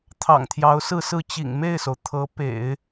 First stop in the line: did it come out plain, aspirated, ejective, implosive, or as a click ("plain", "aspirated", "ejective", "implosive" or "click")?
aspirated